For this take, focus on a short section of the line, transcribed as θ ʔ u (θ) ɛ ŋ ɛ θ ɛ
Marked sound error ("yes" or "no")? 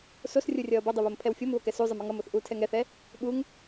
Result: yes